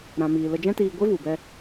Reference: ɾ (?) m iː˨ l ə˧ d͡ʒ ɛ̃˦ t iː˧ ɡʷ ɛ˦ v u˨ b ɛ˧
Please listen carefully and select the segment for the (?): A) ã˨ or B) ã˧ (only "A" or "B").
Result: A